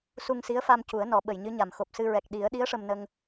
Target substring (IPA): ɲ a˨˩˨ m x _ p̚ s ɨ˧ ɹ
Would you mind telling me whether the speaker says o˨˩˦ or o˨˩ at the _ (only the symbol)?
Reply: o˨˩